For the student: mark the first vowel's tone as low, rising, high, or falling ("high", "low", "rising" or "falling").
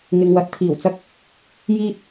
low